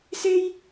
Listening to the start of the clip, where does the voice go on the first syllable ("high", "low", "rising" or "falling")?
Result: high